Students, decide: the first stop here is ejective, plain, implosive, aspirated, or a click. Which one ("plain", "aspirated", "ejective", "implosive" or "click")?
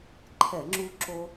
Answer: click